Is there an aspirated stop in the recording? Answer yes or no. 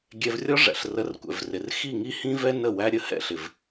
no